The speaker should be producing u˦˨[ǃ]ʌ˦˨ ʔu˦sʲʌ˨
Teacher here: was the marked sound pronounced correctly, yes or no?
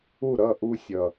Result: no